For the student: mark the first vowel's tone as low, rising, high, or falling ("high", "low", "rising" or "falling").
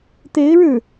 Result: rising